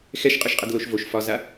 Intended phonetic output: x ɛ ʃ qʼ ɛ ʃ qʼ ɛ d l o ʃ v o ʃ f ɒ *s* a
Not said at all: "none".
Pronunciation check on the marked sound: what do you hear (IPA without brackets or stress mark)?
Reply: z